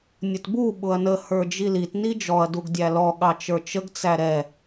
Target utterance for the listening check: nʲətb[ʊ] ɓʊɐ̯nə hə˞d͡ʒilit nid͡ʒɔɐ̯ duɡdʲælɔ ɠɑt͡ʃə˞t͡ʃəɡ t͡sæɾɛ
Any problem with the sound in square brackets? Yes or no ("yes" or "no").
yes